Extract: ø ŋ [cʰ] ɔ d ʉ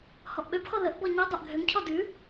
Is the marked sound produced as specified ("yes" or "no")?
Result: yes